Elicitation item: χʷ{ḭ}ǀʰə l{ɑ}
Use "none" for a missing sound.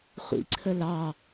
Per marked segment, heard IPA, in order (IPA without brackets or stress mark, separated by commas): ḭ, ɑ